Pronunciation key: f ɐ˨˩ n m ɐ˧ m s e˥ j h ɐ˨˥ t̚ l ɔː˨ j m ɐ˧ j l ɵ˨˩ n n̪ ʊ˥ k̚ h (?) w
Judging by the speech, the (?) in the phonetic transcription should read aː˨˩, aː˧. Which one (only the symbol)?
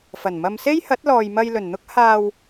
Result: aː˧